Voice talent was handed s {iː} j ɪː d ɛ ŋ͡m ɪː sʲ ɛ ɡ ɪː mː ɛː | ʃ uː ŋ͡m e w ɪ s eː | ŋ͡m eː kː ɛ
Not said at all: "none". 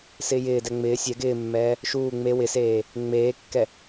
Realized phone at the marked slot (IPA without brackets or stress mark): ɪː